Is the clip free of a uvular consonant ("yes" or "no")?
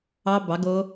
yes